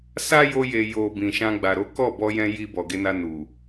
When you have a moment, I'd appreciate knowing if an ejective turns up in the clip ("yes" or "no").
no